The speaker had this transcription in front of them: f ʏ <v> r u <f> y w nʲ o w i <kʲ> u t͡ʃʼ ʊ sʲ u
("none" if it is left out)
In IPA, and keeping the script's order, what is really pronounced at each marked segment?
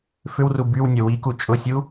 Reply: w, b, k

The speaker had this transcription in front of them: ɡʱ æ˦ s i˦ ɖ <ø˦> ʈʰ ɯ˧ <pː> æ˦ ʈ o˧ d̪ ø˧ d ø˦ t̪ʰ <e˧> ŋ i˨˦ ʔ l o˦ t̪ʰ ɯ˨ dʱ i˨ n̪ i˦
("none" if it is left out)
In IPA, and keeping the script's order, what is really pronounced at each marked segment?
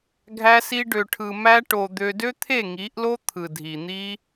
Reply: ø˧, m, e˦˨

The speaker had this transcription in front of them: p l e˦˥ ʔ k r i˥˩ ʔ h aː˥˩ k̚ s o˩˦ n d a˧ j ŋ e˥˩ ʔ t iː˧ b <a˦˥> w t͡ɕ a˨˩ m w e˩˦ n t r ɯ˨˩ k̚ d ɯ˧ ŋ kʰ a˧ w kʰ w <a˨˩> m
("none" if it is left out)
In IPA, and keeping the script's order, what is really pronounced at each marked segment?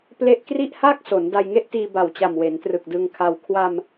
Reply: a˨˩, a˧

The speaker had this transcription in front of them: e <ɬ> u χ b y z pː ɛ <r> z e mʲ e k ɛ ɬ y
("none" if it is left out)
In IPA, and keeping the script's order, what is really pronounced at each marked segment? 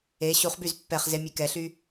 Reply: ɕ, χ

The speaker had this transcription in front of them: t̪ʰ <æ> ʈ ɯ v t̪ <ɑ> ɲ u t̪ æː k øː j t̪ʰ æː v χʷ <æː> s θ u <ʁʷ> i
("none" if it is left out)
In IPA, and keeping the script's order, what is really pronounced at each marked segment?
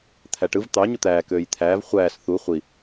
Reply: æ, ɑ, æː, χʷ

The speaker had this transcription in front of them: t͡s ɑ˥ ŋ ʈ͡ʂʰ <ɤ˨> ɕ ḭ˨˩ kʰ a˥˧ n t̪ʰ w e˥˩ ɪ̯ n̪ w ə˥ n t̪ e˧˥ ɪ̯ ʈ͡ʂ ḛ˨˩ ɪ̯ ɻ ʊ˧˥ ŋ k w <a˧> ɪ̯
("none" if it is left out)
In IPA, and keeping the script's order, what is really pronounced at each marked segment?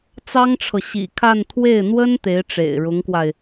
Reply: ɤ˨, a˧

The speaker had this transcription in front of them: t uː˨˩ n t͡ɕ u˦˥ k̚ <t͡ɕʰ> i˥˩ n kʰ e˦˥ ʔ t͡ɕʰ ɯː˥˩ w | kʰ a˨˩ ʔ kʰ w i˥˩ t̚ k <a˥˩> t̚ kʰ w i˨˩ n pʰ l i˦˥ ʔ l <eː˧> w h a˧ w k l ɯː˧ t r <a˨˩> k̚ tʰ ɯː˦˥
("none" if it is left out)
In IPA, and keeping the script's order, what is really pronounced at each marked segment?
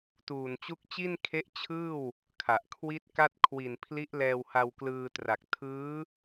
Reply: t͡ɕ, a˥˩, ɛː˧, a˨˩

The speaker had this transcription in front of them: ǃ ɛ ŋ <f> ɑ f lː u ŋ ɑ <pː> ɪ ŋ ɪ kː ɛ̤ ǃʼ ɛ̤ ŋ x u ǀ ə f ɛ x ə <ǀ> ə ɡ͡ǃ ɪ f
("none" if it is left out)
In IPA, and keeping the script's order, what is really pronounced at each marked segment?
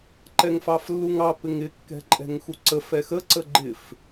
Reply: f, p, ǀ

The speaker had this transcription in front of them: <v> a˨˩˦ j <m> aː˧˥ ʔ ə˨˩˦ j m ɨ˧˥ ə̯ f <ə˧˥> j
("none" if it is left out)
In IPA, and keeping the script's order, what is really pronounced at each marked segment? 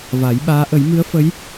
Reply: v, ɓ, ə˧˥

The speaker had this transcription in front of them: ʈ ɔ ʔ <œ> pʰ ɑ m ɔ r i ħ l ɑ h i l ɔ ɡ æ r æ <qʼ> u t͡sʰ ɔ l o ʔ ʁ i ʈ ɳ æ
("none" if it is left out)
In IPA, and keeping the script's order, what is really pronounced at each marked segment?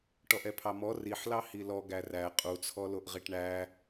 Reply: ɛ, qʼ

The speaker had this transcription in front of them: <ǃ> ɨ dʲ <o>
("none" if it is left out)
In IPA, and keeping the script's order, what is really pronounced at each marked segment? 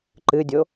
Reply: ǃ, o

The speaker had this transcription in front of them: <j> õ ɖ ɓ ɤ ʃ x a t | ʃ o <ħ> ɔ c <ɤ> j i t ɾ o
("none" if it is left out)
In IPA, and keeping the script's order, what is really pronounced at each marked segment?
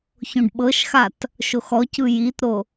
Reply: ç, x, ɯ

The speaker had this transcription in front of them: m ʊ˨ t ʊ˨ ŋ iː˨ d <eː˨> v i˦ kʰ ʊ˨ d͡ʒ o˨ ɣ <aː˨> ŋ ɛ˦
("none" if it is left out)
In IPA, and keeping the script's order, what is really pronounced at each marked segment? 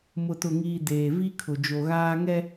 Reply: eː˨, aː˦

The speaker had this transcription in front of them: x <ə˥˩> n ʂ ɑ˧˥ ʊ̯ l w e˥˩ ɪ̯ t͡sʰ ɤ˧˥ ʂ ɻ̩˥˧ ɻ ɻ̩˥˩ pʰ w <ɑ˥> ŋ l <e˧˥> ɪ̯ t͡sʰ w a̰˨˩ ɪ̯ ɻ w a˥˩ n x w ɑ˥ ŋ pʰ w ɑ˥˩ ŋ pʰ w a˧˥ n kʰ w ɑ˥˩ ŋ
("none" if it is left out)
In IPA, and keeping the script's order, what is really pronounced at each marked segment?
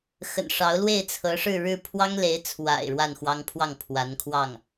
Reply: ə̰˨˩, ɑ˥, e˧˥

